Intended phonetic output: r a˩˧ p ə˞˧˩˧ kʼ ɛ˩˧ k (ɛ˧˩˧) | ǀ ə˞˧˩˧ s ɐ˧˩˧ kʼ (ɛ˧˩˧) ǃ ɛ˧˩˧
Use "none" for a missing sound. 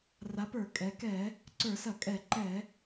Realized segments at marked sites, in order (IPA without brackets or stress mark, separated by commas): ɛ˧˩˧, ɛ˧˩˧